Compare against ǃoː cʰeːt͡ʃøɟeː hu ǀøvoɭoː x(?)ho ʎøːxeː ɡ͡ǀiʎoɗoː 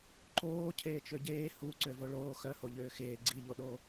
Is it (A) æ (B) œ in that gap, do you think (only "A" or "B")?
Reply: B